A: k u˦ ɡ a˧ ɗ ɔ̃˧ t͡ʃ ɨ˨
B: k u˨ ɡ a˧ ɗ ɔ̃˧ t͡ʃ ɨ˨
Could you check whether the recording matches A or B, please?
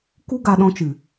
A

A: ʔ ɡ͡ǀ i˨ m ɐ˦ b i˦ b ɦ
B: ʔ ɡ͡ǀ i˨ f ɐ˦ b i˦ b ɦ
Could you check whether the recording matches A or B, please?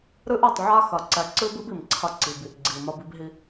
A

